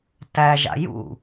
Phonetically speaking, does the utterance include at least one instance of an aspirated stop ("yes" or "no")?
no